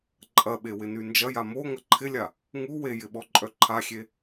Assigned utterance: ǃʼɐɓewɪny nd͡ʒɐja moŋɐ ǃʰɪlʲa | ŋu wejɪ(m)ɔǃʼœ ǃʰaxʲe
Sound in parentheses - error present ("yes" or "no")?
yes